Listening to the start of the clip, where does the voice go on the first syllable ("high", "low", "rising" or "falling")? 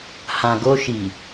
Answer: low